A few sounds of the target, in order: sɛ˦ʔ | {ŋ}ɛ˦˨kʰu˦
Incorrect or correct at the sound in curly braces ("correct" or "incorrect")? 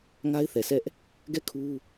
incorrect